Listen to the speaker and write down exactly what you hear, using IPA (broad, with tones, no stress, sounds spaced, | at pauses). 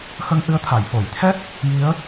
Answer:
x ə˧ ŋ ʔ ɨ˧ ə̯ t̪ʰ a˨˩˨ j f o˨˩˨ j t̪ʰ ɛ˦˥ t̚ | j i˧˥ ə̯